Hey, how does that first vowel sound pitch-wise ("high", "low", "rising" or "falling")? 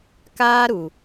high